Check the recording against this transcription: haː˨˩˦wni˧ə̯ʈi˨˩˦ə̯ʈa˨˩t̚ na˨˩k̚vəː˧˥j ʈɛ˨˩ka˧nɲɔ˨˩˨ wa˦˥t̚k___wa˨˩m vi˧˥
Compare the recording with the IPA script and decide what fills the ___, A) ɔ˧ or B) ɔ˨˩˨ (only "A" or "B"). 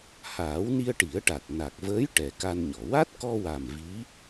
A